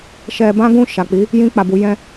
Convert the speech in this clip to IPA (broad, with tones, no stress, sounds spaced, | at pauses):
ʃ ɛ˧ b ã˦ ɡ ũ˦˨ ʃ a˨ k͡p i˨˦ | j ĩ˧ k͡p a˨ b u˨ j ɛ̃˧